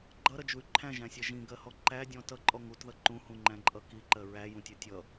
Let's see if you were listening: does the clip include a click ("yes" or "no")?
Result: yes